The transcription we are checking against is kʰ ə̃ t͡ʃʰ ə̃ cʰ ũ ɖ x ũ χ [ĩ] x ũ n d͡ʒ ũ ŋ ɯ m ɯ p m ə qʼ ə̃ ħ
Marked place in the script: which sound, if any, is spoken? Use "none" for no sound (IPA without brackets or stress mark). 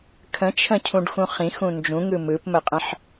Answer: ĩ